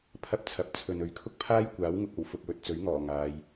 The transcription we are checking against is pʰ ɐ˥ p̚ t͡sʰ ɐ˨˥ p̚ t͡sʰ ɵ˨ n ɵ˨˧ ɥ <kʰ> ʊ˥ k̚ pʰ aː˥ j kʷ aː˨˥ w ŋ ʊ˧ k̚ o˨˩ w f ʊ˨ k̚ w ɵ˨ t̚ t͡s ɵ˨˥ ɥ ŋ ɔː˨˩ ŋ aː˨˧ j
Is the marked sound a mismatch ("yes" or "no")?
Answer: no